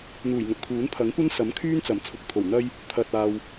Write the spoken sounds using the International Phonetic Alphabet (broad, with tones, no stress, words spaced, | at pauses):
n̪uː˨˩jŋɵ˨t̚pʰuː˨˥n pʰɐ˨˥ŋkʷɐ˥nsɐ˨˥mkʰyː˥n t͡sɐ˨˩mt͡sʰʊ˨˥k̚t̪ʰo˨˩w n̪ɐ˥j | t̪ʰɐ˨t̚aː˨w